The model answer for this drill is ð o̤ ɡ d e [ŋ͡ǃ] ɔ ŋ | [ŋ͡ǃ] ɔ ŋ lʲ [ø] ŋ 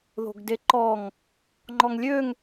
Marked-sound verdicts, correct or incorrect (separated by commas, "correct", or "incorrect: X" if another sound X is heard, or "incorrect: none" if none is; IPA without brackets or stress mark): incorrect: ǃ, correct, correct